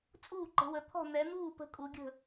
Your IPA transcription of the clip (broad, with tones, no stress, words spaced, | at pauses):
t͡sʼuː˥˨ǃə̤˨˦wə˨˦ t̪ʰɔ̤˥˨ n̪ɛ˨˦n̪uː˥˨ pə̤˦kʼu˨˦ɡʲə̤˥˨